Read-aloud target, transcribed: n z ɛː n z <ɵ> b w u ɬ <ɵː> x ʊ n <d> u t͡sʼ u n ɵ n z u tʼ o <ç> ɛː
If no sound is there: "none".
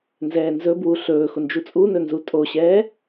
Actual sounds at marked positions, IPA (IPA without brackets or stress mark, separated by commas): ɵ, ɵː, d͡ʒ, ɕ